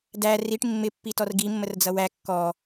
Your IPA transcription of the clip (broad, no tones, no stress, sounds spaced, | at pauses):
d æ r i ʈ mː ɪ pː i t ɔ r ɡ i mː ə r d͡z ʌ w æ kː ɔ